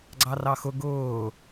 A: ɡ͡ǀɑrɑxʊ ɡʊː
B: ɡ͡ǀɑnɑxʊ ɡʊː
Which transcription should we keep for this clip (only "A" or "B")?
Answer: A